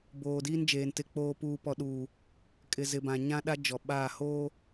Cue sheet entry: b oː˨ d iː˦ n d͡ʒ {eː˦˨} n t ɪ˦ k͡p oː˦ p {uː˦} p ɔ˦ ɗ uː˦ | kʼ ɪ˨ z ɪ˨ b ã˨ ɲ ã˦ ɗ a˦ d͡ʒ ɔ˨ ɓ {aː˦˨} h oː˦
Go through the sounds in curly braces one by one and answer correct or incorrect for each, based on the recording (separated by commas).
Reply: incorrect, correct, correct